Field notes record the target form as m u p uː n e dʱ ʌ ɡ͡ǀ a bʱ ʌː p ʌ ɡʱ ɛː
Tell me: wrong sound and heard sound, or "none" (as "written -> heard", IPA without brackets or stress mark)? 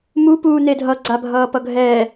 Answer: none